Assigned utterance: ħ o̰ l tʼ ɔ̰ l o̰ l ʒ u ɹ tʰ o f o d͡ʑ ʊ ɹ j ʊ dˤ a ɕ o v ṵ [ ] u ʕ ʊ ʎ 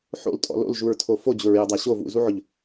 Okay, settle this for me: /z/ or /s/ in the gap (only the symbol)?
z